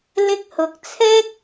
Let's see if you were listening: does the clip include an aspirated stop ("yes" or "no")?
yes